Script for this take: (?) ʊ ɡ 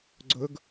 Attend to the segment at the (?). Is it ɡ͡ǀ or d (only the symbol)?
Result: ɡ͡ǀ